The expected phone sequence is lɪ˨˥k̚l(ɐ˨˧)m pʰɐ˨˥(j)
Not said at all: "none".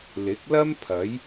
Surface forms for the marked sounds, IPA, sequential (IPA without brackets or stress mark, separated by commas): ɐ˥, j